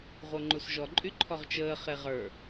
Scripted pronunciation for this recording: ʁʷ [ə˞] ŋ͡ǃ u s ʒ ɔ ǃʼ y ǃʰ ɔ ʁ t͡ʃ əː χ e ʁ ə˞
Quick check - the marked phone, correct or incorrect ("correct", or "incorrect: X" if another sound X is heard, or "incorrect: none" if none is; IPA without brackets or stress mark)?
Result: incorrect: ɤ